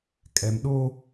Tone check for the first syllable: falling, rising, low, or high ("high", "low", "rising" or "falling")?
low